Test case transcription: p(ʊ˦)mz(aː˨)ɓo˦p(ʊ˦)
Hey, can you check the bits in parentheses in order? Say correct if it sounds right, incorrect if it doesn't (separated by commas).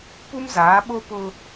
incorrect, incorrect, correct